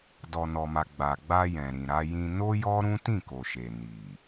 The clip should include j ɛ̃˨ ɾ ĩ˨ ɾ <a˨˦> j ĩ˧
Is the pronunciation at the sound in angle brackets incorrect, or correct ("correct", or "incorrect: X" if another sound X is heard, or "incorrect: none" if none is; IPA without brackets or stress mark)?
incorrect: a˧